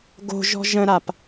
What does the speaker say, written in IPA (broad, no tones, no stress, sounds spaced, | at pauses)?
ɡ o̤ ʒ ɔ̤ ʒ ə̃ ɾ a p